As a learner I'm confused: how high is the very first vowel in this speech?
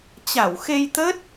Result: low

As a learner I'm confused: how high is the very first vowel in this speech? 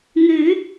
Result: high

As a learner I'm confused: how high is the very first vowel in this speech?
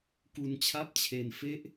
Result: high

